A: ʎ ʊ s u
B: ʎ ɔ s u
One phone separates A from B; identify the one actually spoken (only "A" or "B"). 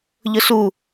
A